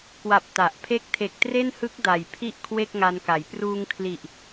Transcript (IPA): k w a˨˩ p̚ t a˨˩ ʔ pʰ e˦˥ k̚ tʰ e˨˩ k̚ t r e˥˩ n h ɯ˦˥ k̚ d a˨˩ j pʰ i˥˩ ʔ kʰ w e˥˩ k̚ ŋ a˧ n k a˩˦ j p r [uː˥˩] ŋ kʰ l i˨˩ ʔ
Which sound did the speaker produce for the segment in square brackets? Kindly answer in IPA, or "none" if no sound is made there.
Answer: uː˧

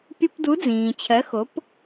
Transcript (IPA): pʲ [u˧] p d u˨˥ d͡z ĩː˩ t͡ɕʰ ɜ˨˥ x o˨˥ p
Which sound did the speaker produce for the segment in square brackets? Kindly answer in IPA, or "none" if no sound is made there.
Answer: u˧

